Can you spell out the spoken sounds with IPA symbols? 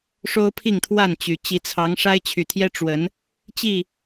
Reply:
ʂ o˦ ʊ̯ pʰ i˥˨ ŋ t̪ʰ w a˥˨ n t͡ɕ y˨˩ t͡ɕ i˨˦ t͡sʰ ɑ˨˦ ŋ ʂ a˦ ɪ̯ t͡ɕʰ y˨˩ t̪ʰ j ɛ˦ ʈ͡ʂ w ə˨˦ n | t͡ɕ i˥˨

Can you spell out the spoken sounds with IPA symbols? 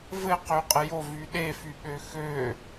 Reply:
v ɘ q ø qʼ ə j o v y ɗ e f y ɓ ø x ø

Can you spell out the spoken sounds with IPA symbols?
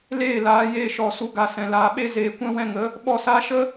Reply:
l eː˦˨ l aː˨˦ j eː˧ ʃ ɔ˨ s u˨ ɡ a˨ s ɛ̃˨ l aː˨˦ ɓ e˦ z eː˧ kʷ ɛ̃˦ w ɛ̃˧ ŋ ə˨˦ | ɓ ɔ˦˨ s aː˦ ʃ ə˦

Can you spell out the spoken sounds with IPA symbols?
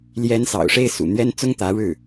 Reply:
l j ɛ˧˥ n s ɑ̰˨˩ ʊ̯ ʂ e˥˩ ɪ̯ s ṵ˨˩ n̪ ɥ ɛ˥ n t͡s ʊ˥ ŋ t̪ ä˧˥ ɻ ɻ̩˥˩

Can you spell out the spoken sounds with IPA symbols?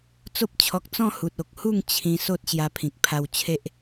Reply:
t͡s o˦ p̚ t͡ɕʰ ɔ˨ k̚ t͡s ɔ̃˥˧ h u˨ t̚ o˨ k̚ h u˥˧ ŋ t͡ɕʰ ĩ˧ s o˦ t̚ ɕ j a˧ pʰ ĩ˨ k̚ pʰ a˧ w t͡ɕʰ e˦ ʔ

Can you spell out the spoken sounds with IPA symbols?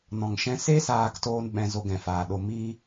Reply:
n ɔ̃˨ ŋ ʃ ɛ̃˧ s e˦ s aː˦˨ k t oː˦ n ɓ ɛ̃˧ z o˧ ɡ ɛ̃˨ f aː˨ ɗ o˧ m i˦

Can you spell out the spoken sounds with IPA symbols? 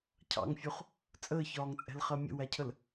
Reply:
cʰ ɑ̰ ŋ fʲ u χ | t͡sʼ əː ç ɒː ŋ t͡sʼ ɛ̤ l χ ɜ mʲ ə̰ w æ cʰ ə l

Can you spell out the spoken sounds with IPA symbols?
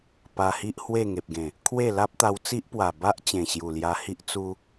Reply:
p a˧ h i˦ ʔ h w e˥˧ ŋ e˨ p̚ ɡ ẽ˨˩ | kʰ w e˥˧ l a˦ p̚ t̪ a˧ w t͡s i˦ ʔ p w a˨˩ b a˦ ʔ t͡ɕ ẽ˨˩ ɕ j u˨˩ l j a˧ h i˦ ʔ t͡s u˦

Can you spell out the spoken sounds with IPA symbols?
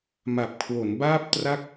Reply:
m a˨˩ p̚ kʰ w o˩˦ n b aː˥˩ p̚ t r a˥˩ k̚

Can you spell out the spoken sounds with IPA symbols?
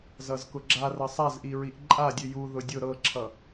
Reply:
z ʌ z k ʊ ɡ͡ǁ a r ɤ sˤ a z ʔ i ɹ i ʔ ǃʼ a dʲ ʉ j u ð ʊ dʲ ʊ ɾ ɤ ǁʰ ʌ

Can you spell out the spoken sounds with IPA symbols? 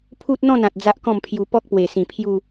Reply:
pʰ u˦ t̚ n̪ ɔ̃˥˧ n ã˨ t̚ d͡z a˦ ʔ k ɔ̃˥˧ m pʰ j u˧ p ɔ˦ k̚ p w e˨˩ s ĩ˨˩ pʰ j u˥˧

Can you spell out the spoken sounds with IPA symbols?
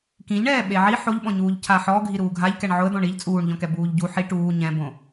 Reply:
k ĩ ʎ ɳ ɛː ɓ e ʕ i ħ o ʎ ɓ ɔ̃ ɲ uː ʎ cʰ a ħ ɔ ɡʱ i ɾ uː ɡʱ a ʎ k ɛ ɳ ʕ ʊ ə̯ d̪ ɔ̃ ɳ i ʎ t͡sʼ uː ɳ ʎ ɔ̃ k ɛ b uː ʎ ɟ u ħ i ʈ uː ɲ ɛ̃ b õ

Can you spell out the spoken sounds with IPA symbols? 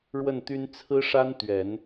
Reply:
ɻ w ə˥˩ n t̪ y˥ n t͡sʰ ɹ̩˥ ʂ a˥ n t̪ ɥ ɛ˨˩˦ n

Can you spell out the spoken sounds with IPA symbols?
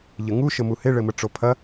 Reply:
ʎ ɘ ŋ u ʃ ə m u h e ɭ ɘ m ə ʈ͡ʂ o pʰ ɐ

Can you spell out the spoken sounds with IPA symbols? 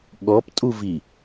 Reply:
ɠ ɔ p tʼ u v i

